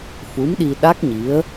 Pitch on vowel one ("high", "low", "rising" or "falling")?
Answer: rising